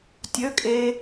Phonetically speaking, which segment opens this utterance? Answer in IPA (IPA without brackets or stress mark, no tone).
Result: tʲ